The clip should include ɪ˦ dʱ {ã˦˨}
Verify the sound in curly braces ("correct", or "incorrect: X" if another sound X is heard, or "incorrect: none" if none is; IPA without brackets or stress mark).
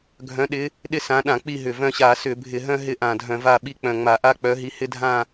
correct